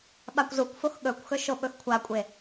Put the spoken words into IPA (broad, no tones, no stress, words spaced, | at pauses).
ɓakʷzukʷfox ɠɵkʷxɵ ʃoɓɵxkʷʰakʷʼe